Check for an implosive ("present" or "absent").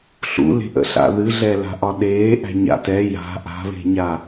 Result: present